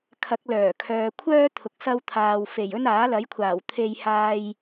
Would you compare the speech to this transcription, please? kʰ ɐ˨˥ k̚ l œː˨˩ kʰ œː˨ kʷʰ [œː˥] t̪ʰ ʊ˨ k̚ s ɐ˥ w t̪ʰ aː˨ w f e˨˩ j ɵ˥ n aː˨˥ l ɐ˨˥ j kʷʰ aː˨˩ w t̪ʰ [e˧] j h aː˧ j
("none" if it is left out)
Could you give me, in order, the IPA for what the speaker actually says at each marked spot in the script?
œː˥, e˧

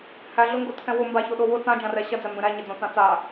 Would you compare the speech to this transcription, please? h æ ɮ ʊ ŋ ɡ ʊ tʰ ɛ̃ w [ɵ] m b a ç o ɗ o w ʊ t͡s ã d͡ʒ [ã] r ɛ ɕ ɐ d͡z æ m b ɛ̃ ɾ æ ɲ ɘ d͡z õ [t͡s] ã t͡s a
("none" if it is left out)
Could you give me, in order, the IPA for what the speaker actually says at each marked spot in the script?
ʊ, ã, t͡s

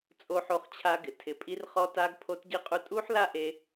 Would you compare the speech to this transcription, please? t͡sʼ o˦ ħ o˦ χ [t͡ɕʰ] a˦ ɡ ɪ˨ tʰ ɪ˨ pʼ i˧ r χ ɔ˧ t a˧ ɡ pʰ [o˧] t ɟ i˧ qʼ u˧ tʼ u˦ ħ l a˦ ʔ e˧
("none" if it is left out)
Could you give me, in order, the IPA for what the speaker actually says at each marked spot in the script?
t͡ɕʰ, o˧

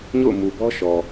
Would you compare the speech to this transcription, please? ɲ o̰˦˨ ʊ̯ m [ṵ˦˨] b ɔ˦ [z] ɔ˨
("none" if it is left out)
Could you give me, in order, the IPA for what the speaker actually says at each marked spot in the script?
u˨, ʃ

